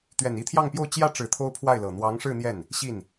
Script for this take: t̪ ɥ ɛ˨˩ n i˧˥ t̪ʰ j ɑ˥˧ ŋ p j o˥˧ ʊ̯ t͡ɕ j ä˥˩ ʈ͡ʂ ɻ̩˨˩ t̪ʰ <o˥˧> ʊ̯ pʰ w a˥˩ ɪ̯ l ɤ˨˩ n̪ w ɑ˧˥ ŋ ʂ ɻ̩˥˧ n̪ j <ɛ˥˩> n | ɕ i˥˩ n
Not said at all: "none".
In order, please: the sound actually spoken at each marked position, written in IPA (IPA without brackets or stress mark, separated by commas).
o˥, ɛ˥˩